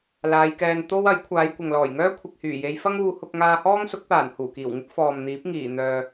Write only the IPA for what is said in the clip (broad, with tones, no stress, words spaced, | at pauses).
laː˨˧jkɛː˧n t̪o˥w ɐ˨˥j kʷʰaː˨˧jkʷɐ˨ŋlɔː˨˩jŋœː˥ kʷʰɪ˨k̚hyː˨˩je˨˧jfɐ˥ŋ uː˧hʊ˧k̚ ŋaː˧hɔː˥ŋsʊ˨˥k̚paː˨˩n huː˨˩kiː˨˩wŋɪ˥k̚ fɔː˨mn̪iː˨˥p̚ ŋiː˨˩n̪œː˨